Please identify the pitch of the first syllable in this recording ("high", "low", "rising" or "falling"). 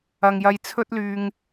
low